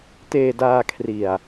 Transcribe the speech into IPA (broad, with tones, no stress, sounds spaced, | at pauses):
t eː˧ d aː˧ kʰ r i˨˩ a̯